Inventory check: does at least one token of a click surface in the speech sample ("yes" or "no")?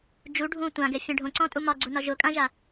yes